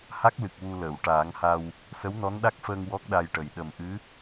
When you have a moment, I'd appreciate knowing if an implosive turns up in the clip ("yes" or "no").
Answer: yes